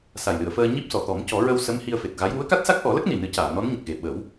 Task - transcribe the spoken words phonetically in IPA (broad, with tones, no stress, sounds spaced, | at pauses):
s a˨˩ j l ɨ˨˩˨ ə̯ f əː˧ ɲ i˦˥ p̚ s ɔ˨˩˨ t̪ ɔ˨˩˦ m c ɔ˨˩˦ ɹ ə˧ w s ə˧˥ m h i˧ ə̯ f e˨˩ t̚ ɣ a˧˥ j w u˧˥ ə̯ k a˦˥ t̚ s a˦˥ k̚ ʔ ɔ˨˩˦ l ə˦˥ k̚ n i˨˩ n ɨ˨˩˦ c aː˨˩˨ n ɔ˧˥ n ɲ ə˨˩ k̚ ɣ e˨˩ ɓ ə˨˩˦ w